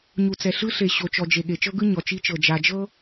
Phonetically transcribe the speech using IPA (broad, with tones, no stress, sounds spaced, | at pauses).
ɲ u˨ t͡s ɛ˨ ɬ ɯ˦ ɬ e˨ ɕ o˨ t͡ʃ ɔ˨ d͡ʒ e˨ ɠ e˨ t͡ʃ ɤ˦ ɡ ɯ˦ ɲ ɔ˨ t͡ʃ i˦ t͡ʃ ɤ˨ d͡ʒ a˨ d͡ʒ ɤ˦